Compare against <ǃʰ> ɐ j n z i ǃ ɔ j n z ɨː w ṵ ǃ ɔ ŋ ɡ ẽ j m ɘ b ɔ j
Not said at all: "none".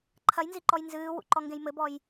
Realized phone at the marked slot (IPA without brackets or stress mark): ǃʰ